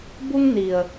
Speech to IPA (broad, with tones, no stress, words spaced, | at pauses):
bu˧ŋni˩ə̯